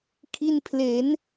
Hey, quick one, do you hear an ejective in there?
no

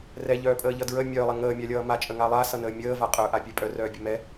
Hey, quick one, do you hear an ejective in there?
yes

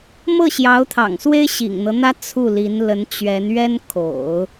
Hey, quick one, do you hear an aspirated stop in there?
yes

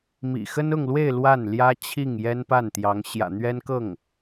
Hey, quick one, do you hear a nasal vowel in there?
no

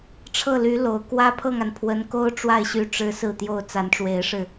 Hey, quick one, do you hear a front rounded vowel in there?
yes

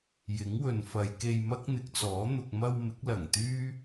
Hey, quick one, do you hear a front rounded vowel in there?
yes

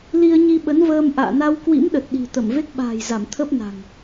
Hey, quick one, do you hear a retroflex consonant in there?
no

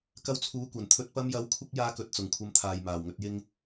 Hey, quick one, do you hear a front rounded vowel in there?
no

